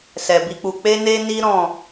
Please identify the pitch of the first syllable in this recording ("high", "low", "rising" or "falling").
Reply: low